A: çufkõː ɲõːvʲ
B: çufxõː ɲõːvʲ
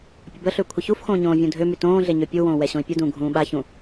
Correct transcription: B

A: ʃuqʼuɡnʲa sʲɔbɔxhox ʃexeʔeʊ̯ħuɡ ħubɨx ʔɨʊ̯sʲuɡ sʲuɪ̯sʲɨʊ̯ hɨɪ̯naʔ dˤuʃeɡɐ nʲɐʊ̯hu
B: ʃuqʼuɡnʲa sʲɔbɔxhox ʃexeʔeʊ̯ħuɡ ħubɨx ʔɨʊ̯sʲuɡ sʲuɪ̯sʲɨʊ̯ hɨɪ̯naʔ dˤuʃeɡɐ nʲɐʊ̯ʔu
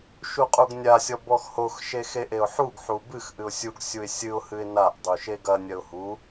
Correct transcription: A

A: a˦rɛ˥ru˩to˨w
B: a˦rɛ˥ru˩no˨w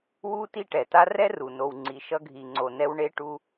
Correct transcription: B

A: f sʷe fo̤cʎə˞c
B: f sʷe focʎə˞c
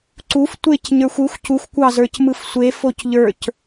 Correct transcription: B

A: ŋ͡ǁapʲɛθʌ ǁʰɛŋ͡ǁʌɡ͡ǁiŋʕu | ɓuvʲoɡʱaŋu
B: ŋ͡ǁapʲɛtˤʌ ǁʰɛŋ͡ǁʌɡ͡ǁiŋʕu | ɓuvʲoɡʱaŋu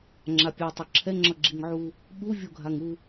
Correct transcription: B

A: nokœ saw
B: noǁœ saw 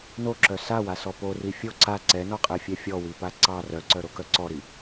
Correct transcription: B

